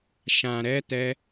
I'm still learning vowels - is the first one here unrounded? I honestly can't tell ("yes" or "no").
yes